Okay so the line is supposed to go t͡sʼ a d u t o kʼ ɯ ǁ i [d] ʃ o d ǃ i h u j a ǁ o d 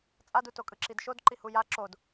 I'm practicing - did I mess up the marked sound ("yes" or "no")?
no